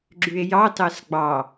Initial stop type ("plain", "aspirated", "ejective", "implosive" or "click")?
click